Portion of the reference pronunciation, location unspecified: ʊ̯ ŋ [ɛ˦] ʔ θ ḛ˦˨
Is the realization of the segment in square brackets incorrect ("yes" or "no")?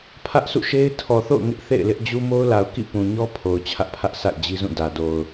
yes